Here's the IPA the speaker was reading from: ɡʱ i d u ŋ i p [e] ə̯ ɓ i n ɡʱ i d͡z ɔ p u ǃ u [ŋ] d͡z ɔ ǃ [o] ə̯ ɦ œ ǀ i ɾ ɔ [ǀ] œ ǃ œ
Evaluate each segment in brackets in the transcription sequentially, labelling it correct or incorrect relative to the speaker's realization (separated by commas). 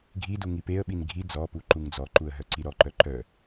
correct, correct, incorrect, incorrect